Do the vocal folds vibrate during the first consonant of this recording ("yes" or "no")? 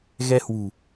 yes